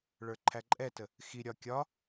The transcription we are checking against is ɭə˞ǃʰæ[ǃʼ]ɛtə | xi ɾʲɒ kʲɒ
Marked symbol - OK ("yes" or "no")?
yes